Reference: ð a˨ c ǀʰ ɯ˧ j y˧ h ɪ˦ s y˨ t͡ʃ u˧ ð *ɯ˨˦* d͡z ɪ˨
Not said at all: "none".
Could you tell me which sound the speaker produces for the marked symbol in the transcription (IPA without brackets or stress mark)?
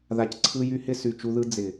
ɯ˦